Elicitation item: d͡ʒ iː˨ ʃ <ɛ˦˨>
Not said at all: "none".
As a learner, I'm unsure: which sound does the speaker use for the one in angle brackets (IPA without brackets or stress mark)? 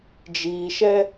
ɛ˦